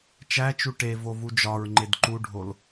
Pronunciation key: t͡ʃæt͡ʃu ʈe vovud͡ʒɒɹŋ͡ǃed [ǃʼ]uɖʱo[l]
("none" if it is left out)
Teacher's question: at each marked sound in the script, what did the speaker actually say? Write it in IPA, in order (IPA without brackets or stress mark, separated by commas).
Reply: ǃ, l